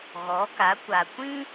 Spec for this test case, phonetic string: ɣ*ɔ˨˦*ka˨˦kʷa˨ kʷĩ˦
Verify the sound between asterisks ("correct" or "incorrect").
correct